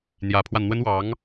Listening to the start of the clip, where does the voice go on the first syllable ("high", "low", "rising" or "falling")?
rising